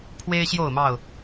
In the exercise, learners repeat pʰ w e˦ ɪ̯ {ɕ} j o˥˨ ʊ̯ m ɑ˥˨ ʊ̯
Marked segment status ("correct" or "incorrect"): correct